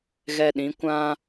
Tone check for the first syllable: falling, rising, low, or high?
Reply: high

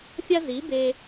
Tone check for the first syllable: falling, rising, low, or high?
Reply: high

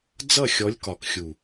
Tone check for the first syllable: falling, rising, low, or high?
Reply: falling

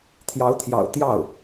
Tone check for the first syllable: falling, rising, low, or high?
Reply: rising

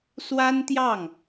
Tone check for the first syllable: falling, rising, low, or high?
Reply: high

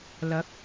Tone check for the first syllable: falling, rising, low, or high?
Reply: rising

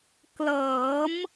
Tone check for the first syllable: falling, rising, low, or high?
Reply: rising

